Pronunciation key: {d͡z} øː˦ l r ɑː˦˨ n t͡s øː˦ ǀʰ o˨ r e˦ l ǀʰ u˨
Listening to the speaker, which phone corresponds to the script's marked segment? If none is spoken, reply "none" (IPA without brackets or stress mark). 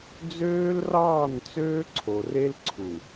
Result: d͡z